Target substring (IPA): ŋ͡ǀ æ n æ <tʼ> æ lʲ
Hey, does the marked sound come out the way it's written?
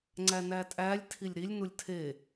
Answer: yes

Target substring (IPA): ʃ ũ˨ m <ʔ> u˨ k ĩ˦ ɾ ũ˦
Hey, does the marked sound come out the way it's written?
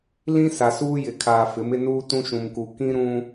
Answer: no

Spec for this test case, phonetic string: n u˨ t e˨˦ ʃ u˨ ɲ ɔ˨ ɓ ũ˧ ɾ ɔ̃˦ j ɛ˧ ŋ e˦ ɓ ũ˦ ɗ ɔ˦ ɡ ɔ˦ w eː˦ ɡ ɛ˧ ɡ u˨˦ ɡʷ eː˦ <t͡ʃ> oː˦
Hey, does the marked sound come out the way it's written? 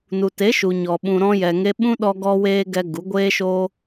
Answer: no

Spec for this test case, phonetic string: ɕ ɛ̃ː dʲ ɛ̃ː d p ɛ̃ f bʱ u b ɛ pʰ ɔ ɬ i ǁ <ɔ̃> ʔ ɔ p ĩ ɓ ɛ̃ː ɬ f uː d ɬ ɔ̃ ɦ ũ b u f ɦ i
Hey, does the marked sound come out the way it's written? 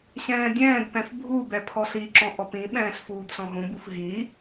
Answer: yes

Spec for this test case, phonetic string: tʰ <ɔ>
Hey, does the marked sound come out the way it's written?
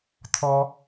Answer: yes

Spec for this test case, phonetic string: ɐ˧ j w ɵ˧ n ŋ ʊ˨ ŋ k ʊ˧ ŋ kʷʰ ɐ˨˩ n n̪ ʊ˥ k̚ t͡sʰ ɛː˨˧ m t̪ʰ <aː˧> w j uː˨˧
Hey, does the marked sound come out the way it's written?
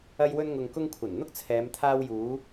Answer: yes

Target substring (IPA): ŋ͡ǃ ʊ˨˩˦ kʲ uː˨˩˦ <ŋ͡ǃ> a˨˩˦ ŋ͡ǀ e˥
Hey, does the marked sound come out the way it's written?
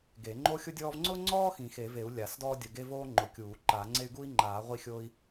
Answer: no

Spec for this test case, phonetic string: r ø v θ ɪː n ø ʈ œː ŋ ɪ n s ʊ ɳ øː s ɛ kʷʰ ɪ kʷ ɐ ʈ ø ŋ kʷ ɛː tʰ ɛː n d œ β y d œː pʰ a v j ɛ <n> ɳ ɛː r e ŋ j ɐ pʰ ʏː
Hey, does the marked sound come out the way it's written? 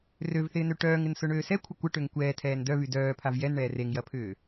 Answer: yes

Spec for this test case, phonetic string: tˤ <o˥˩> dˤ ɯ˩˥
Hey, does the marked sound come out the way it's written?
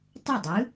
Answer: yes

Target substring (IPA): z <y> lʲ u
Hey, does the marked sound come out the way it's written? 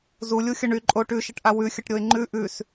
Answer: no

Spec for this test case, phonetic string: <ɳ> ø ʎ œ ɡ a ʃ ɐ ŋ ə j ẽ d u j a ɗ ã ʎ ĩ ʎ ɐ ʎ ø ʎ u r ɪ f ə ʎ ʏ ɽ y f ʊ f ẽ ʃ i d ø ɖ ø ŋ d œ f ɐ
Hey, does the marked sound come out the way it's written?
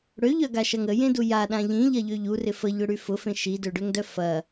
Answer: no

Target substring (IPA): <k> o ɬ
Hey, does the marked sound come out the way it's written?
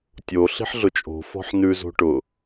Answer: no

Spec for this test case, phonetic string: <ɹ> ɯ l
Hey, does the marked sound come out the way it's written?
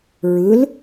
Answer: yes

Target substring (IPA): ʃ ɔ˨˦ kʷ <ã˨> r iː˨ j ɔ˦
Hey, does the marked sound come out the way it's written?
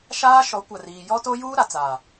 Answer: no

